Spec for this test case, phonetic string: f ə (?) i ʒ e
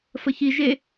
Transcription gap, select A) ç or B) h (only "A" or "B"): A